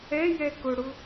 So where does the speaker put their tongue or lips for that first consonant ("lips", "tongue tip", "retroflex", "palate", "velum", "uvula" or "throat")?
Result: palate